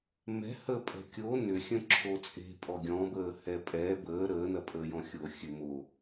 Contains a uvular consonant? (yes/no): no